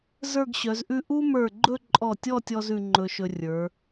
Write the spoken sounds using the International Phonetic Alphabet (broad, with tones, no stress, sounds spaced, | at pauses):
z ə˞˥˧ ɡ ɕ œ˩˧ z ʔ ʉ˥˧ ʔ u˥ m ə˞˧˩ ɡ͡ǃ ɵ˥˧ ǃʼ ɔ˧˩ tʲ ɔ˥˧ tʲ ɔ˧ z ʉ˧ ŋ͡ǃ ɵ˧ ʃ ɵ˧ rʲ ə˞˩˧